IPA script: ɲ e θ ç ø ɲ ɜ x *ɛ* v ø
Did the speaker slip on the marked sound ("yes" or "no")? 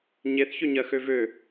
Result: yes